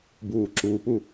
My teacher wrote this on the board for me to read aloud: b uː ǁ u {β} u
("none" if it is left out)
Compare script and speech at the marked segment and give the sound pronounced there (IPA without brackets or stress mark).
p